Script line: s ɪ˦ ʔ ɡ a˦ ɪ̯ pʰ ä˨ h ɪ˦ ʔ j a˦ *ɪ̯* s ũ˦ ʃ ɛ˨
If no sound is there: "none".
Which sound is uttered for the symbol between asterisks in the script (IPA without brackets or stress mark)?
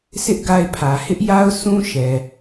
ʊ̯